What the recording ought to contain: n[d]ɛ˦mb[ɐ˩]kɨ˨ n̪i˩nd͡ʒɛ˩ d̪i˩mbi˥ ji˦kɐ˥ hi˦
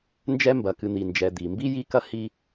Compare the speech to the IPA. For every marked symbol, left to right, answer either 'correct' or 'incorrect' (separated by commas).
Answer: incorrect, correct